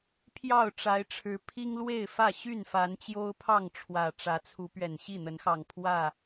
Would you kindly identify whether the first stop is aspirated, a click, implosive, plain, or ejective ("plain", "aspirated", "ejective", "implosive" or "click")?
aspirated